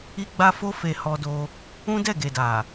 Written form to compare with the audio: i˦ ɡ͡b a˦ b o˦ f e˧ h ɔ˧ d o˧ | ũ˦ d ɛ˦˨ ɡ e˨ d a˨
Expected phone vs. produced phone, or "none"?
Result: b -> f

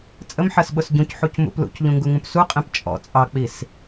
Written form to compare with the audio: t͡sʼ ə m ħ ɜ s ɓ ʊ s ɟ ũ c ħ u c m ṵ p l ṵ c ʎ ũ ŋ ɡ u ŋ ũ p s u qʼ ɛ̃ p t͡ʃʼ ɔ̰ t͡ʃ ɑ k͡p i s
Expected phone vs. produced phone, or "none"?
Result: t͡ʃ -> t͡sʼ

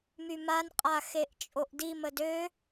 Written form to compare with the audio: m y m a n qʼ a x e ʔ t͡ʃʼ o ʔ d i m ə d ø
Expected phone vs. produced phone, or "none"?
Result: none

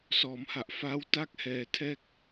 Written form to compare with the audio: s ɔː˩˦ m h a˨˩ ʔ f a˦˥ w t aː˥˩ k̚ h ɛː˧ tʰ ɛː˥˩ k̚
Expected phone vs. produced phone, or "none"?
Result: aː˥˩ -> a˥˩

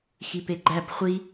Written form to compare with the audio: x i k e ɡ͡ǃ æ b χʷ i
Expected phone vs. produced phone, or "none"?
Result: k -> p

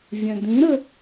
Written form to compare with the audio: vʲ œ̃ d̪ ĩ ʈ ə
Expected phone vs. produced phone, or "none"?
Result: ʈ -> ɾ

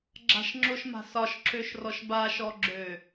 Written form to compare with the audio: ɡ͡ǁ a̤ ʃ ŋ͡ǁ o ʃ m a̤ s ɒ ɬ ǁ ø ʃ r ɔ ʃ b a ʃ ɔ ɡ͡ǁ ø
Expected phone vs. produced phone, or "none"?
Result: ɬ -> ʃ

